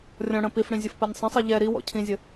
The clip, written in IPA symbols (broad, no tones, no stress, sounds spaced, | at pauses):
rʲ ɔ̃ ɽ ə̃ p i f ɽ ĩ zʲ ə f p ɜ nʲ sˤ ə̃ sˤ i ʎ ɛ ɾ i w ɔ̰ cʰ ĩ zʲ ə